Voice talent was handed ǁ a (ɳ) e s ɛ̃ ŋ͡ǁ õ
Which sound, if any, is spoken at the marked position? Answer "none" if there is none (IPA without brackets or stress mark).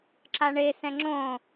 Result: ɳ